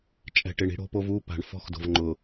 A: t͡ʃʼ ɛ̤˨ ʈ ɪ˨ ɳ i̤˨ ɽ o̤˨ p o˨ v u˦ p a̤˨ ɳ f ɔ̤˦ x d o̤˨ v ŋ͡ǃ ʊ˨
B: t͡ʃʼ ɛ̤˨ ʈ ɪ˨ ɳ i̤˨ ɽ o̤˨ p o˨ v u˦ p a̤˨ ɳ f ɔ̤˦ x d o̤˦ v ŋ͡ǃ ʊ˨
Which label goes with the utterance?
A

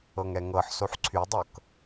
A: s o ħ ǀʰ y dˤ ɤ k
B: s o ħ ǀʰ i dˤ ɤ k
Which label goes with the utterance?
A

